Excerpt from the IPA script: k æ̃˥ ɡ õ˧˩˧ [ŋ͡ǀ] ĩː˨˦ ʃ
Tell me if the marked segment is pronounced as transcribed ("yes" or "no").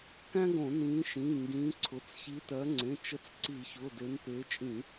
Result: no